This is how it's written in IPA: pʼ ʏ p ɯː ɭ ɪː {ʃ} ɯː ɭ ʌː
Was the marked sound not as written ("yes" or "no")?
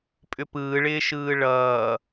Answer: no